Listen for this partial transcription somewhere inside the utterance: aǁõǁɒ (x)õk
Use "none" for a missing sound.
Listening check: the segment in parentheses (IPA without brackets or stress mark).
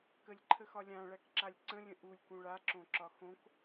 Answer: x